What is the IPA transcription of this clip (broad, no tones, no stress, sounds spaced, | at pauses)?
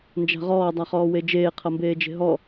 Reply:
n d͡ʒ a̤ ʁ ɔː dˤ a χ ɔː w e d͡ʒ eː qʰ ʌ m b eː d͡ʒ e̤ ɦ ɔ